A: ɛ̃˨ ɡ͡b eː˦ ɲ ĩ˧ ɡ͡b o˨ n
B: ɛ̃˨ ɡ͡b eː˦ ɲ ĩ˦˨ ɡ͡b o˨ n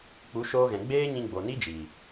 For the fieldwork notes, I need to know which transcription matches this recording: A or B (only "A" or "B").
A